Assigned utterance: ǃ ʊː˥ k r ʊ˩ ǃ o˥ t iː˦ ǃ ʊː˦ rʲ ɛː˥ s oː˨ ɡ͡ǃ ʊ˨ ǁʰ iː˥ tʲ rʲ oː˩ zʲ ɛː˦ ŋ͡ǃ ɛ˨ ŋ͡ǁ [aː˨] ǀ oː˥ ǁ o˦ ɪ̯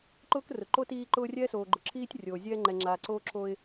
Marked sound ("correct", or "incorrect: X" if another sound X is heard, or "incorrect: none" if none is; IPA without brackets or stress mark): correct